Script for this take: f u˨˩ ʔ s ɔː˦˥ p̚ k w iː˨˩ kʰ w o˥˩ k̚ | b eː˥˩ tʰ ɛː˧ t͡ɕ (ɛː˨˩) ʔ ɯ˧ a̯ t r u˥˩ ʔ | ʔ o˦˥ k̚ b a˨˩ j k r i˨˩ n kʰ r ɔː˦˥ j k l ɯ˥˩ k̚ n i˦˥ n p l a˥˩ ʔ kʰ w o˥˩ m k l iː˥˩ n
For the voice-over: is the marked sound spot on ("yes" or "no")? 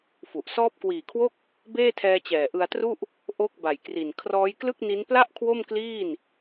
yes